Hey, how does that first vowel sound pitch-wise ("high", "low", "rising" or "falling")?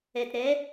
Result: low